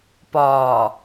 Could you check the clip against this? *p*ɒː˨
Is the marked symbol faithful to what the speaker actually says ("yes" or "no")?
yes